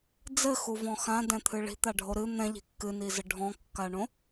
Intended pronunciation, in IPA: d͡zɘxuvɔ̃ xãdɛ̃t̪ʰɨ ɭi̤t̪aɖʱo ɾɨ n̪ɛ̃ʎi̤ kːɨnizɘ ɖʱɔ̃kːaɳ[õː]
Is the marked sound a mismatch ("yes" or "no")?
yes